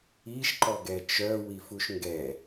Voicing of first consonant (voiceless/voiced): voiceless